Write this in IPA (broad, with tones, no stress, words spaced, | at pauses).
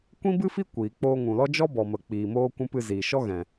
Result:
kʷĩ˦bɨ˦fi˦ kʷiː˨ k͡poː˧ŋũ˨lɔ˦ d͡ʒɔ˦bɔ˨mə˨ k͡piː˨moː˧ kʷũ˦pɨ˧ ziː˨ʃɔ˦ɣɛ̃˨